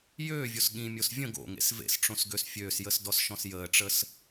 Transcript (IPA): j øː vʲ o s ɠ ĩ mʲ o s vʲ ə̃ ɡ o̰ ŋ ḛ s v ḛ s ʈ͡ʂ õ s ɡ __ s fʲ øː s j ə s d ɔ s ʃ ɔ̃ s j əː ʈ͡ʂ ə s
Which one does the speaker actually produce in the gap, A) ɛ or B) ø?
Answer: B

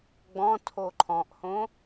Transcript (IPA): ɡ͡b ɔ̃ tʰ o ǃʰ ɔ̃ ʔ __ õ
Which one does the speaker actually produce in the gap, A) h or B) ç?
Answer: A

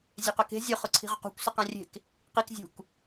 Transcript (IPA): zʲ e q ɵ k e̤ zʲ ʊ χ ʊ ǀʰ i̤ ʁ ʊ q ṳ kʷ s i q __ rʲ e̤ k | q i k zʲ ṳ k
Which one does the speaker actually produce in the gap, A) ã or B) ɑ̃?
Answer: A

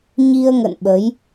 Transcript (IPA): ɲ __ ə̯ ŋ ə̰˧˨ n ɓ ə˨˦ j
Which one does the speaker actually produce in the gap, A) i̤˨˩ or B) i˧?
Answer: B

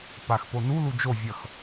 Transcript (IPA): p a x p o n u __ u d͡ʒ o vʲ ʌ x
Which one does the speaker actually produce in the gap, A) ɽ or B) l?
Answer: B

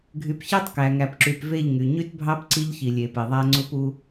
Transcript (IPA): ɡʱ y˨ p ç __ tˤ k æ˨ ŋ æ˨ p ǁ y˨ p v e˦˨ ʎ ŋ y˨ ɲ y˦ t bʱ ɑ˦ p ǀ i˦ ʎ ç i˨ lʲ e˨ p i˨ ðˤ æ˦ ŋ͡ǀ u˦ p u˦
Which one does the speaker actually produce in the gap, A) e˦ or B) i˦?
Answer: A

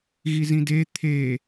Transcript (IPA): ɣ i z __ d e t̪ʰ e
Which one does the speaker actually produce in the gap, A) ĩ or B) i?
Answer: A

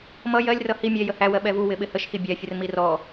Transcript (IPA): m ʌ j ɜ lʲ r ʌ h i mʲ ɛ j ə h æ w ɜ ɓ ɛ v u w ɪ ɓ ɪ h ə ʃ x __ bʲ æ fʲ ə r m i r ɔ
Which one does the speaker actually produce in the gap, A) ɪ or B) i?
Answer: B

